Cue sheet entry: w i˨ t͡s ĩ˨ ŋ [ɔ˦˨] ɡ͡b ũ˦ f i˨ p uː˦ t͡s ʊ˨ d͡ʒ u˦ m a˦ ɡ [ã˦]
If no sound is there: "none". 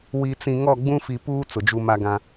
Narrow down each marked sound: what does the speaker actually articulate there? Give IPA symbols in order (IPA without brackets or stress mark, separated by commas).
ɔ˦˨, ã˦